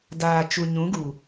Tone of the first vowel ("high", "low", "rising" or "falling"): low